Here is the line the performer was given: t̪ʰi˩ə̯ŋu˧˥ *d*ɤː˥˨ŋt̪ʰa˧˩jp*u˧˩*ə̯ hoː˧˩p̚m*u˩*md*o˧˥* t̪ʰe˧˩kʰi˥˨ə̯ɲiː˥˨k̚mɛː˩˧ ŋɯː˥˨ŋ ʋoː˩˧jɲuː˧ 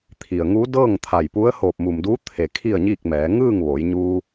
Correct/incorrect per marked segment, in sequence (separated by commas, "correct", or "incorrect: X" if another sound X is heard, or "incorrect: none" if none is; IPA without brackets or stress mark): correct, incorrect: u˧˥, correct, incorrect: u˧˥